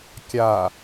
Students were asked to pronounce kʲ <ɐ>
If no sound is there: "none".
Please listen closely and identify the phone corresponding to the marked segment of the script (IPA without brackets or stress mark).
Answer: a